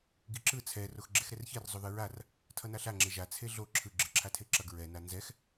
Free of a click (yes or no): no